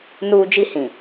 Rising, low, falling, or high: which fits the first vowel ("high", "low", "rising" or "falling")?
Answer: high